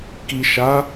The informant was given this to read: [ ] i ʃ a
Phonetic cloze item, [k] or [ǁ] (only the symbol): k